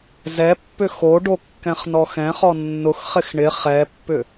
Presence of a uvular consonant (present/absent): present